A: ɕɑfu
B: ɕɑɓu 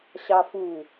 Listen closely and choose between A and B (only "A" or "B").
A